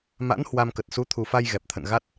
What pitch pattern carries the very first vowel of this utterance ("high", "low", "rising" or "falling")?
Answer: rising